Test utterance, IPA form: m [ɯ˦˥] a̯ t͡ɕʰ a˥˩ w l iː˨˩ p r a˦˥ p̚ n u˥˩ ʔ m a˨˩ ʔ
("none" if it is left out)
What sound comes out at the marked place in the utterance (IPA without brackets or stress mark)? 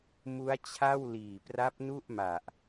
u˦˥